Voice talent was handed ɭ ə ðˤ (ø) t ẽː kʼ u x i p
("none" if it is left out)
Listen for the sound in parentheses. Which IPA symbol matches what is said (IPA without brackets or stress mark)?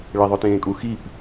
ɵ